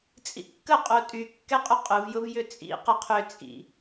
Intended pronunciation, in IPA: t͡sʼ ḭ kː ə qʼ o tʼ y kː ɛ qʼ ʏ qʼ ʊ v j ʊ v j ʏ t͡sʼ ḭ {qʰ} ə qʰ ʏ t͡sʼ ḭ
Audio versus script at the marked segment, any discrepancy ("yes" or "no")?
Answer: yes